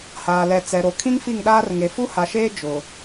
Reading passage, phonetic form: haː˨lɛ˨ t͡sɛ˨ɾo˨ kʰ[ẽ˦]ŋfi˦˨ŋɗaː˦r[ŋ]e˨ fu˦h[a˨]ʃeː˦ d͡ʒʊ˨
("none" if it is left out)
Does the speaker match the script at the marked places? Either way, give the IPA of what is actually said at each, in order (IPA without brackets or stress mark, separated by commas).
ĩ˦, ŋ, a˨